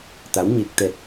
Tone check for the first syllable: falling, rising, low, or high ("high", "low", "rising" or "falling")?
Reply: rising